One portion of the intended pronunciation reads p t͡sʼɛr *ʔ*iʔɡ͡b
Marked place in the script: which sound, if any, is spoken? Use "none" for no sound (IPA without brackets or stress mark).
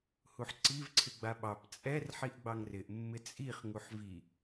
ħ